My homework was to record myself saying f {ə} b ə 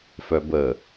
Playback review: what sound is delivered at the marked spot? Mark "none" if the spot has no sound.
œ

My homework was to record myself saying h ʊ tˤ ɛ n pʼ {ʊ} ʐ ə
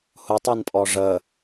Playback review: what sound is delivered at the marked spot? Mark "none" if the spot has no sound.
ɔ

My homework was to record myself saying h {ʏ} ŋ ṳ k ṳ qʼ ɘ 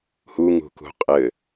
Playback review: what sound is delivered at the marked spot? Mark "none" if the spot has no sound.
u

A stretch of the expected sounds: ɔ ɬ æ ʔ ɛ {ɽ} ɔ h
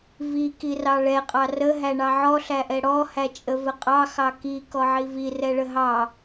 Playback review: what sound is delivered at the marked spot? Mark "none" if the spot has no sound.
ɽ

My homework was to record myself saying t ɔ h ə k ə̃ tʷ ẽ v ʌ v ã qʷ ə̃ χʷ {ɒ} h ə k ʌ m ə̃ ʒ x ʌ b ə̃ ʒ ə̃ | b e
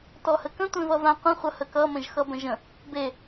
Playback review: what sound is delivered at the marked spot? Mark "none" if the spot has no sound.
ʌ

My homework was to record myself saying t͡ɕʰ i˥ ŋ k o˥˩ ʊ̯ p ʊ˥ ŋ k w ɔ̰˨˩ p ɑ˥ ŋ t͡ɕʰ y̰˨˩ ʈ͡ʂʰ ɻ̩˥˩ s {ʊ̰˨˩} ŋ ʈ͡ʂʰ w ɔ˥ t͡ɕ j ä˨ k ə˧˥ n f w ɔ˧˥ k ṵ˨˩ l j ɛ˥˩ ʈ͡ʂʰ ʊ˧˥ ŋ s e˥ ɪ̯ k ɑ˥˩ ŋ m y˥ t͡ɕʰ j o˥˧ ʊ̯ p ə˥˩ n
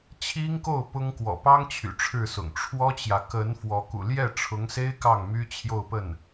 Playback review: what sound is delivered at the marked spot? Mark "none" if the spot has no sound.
ʊ̰˨˩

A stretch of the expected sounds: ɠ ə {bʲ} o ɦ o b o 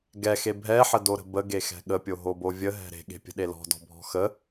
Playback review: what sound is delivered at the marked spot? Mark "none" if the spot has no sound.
pʲ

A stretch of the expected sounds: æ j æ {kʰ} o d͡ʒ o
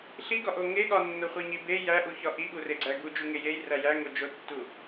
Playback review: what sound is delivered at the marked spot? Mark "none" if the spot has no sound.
ŋ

